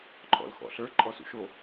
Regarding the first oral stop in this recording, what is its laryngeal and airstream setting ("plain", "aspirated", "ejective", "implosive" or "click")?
click